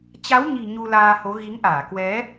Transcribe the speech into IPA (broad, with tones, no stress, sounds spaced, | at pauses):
t͡ɕ a˨˦ w ɲ i̤˨˩ ɲ u˧ l aː˧ h o˨˦ ɣ i˨˦ ŋ ʔ aː˧˩ k w ɛ˨˦